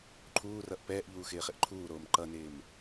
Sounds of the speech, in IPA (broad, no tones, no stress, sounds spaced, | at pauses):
ǃʰ uː r ʌ ʔ p ɛː ʔ ʎ uː x ɪː χ ɪ ʔ ǃʰ uː ɾ oː m ǃ ʌ n ɪː m